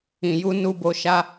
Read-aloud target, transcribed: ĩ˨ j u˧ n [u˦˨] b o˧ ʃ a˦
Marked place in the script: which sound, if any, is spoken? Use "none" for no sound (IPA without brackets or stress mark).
u˧